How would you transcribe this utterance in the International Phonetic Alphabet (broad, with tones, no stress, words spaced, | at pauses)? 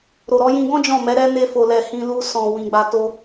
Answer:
ɾo˨ɾɔ˧jĩ˧ɡɔ̃˦ d͡ʒɔ̃˦˨mɛ˨˦ ɾɛ˦ ne˧fo˨lɛ˨ hĩ˧lu˧ sɔ̃˨ wĩ˨ɡ͡ba˧ to˦